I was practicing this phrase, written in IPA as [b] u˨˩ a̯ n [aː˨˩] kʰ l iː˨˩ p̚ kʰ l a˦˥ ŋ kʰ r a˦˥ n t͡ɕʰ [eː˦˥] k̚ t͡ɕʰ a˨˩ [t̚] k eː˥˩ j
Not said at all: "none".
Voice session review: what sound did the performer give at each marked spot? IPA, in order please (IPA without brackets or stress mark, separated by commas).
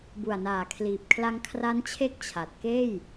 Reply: b, aː˨˩, e˦˥, t̚